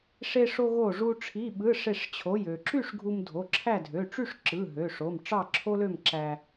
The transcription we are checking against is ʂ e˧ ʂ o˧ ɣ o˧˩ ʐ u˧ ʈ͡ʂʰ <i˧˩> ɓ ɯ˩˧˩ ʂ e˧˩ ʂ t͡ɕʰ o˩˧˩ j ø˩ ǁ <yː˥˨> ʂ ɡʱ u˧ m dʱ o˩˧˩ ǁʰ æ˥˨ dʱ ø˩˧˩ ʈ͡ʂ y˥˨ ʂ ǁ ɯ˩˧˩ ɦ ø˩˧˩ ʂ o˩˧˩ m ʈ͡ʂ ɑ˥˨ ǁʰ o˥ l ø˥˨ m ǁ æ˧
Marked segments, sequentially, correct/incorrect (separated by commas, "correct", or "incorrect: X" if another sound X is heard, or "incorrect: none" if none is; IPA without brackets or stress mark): incorrect: i˩˧˩, incorrect: y˥˨